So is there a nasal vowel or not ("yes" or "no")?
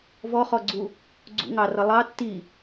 no